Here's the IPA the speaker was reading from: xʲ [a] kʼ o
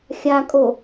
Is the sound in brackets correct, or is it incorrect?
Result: correct